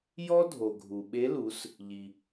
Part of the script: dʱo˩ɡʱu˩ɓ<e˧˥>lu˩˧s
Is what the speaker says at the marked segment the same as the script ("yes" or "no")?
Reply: yes